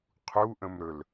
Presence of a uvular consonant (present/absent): present